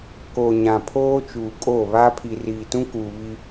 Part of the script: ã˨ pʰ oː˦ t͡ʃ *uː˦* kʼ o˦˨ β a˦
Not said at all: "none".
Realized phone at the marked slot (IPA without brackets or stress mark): uː˨